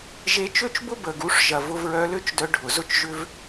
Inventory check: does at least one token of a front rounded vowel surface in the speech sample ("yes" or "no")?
yes